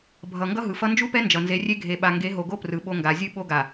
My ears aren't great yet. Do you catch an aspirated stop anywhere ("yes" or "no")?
no